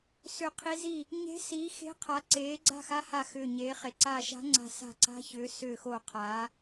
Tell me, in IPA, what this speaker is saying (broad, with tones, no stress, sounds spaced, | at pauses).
s ʏ˧˩ qʰ i˧˥ z i˥˩ | ɲ e̤˧˥ s iː˩˥ x e̤˧˥ qʰ a˩˥ ǀ eː˩˥ ɡ͡ǀ a̤˥˩ x a˧˥ h a˧˩ x ʏː˧˩ ɲ eː˩˥ χ e˩˥ ǀ aː˧˩ ʃ a̤˧˥ ŋ͡ǀ a̤˧˩ s a̤˧˩ ǀ a̤˧˥ ç ʏː˩˥ s ʏː˧˩ x o˧˩ qʰ aː˩˥